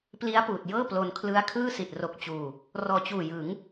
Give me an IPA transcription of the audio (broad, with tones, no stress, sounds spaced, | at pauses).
p l i˦˥ a̯ p uː˨˩ t̚ j ɤː˥˩ p l o˧ n kʰ l ɯ˦˥ a̯ kʰ ɯː˥˩ s i˨˩ t̚ r o˨˩ k̚ t͡ɕ uː˨˩ | r ɔː˨˩ t͡ɕ uː˨˩ j ɯ˩˦ ŋ